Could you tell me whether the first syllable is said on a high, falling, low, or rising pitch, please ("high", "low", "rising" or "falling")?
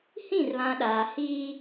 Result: falling